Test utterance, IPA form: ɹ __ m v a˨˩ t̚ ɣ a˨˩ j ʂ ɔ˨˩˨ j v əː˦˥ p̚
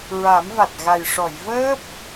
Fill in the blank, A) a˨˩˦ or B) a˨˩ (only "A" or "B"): A